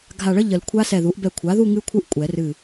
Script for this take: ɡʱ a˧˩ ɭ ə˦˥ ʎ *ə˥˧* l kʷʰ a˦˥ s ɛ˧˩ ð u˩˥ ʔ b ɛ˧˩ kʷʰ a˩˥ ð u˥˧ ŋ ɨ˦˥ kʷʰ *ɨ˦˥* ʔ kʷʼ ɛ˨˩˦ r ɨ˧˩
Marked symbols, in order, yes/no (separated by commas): no, yes